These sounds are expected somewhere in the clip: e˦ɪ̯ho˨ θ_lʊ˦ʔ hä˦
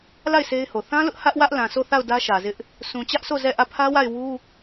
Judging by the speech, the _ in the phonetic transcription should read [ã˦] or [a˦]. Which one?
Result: ã˦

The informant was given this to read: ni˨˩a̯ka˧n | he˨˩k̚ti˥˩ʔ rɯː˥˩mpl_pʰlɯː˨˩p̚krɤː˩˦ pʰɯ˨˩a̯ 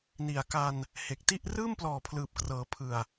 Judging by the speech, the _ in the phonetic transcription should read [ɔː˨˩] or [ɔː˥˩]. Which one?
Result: ɔː˨˩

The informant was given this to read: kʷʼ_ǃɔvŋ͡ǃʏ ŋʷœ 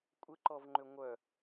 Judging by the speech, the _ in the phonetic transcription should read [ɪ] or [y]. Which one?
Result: ɪ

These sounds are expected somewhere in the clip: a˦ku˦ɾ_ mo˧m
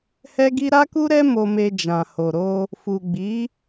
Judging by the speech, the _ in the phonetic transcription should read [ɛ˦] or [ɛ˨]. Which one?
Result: ɛ˦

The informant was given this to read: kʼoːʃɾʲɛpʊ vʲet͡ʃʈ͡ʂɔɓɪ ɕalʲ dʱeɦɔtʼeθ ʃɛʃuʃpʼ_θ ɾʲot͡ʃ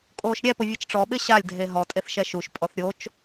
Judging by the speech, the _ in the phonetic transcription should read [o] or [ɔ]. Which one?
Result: ɔ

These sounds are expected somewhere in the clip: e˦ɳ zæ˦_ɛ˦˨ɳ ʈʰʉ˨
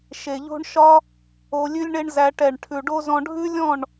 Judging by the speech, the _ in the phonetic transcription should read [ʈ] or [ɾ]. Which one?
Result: ʈ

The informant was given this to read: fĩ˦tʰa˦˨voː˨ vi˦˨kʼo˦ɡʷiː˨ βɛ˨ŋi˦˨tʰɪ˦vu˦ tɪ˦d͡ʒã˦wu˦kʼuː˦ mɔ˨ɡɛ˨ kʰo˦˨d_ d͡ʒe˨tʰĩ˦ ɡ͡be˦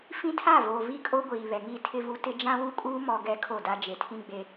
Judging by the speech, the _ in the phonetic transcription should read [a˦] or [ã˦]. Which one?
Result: a˦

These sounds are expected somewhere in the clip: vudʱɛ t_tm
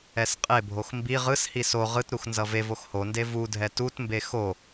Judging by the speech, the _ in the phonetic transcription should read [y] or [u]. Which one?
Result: u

